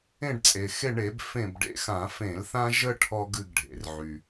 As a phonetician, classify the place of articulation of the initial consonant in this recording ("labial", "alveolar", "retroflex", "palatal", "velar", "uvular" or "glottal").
retroflex